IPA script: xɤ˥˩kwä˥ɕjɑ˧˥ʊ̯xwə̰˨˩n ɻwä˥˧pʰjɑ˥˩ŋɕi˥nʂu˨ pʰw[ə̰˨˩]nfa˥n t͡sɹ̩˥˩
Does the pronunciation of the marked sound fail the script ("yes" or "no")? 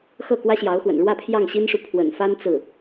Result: no